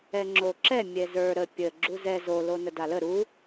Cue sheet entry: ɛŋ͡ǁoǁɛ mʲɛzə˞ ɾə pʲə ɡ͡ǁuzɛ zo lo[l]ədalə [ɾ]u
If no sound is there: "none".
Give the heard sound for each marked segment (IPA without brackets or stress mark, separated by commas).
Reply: n, ɾ